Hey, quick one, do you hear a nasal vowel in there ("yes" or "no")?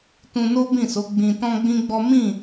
yes